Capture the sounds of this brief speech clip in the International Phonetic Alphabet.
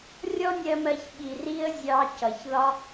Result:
rʲ ɔ˦ nʲ ɜ˧ m ɜ˧ ç ɓ i˨ r i˧ ə̯ zʲ ɑ˧ c ʌ˨ ç ð ɒ˦

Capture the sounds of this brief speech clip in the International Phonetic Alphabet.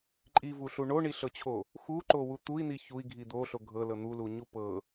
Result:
ǃʼ i v u ɬ u ɳ o ɳ i ɬ ɤ t͡ɕʰ o | x u ǃ o w u t̪ u i̯ n̪ i ç u i̯ ɡʱ i d̪ o ɬ o ɡʱ ɤ l ɤ n̪ u l u ɲ u p ɤ

